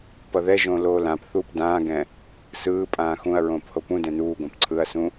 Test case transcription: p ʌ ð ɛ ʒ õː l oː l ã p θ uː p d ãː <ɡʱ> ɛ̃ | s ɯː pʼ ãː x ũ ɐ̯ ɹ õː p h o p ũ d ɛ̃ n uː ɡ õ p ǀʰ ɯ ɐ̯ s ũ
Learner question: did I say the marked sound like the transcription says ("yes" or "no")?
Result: no